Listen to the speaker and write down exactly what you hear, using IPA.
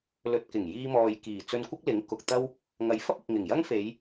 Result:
l ɵ˨ t̚ k ɪ˨˩ ŋ j iː˧ m ɔː˨ j k iː˨˩ t͡s ɵ˧ n kʷ ɪ˥ k̚ l ɪ˨˥ ŋ k ʊ˨ k̚ t̪ ɐ˥ w | ŋ ɐ˨˧ j f ɐ˥ p̚ ɪ˨ k̚ ŋ ɪ˨˩ ŋ j ɐ˥ ŋ f e˨˧ j

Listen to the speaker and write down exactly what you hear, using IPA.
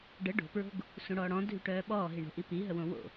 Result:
ɖ ə ɖ o̤ p ɹ o̤ ɡ | s ũ ɽ ɔː ɽ ɔ̃ dʱ y ʈ œː ɓ ɔː ɦ i ɳ o̤ ʔ i p i ɦ ə w õ w o̰

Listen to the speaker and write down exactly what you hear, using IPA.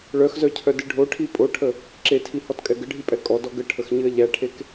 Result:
ɭ œ x z œ cʰ œ d ɨ ɖʱ o ʈʰ i pʼ o ʈʰ ə | ǁ e tʰ i h ɔ t kʼ ɛ ɡ ə ɖʱ i pʼ ɛ kʼ ɔ d ɔ ɡ ə ʈʰ ə x ɲ ɨ ɐ̯ ʎ æ ʈʰ e k

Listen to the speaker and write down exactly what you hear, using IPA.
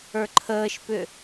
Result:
ə˞ ǃʰ əː ʃ p ʏ

